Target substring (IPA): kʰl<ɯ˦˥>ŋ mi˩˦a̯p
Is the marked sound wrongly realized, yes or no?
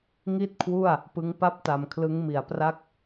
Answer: no